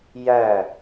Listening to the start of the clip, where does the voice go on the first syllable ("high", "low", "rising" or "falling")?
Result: falling